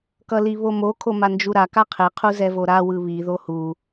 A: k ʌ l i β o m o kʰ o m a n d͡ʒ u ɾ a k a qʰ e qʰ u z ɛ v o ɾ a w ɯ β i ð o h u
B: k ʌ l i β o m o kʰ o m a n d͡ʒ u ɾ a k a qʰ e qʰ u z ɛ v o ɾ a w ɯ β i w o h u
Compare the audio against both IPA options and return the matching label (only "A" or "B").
A